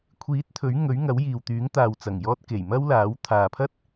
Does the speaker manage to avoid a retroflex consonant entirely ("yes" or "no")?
yes